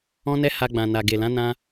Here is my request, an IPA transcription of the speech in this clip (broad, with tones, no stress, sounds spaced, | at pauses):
ɔ̃˦ n ɛ˦ h a˧ ɡ͡b ã˨ n a˨ ɡ e˨ l ã˨˦ n ã˦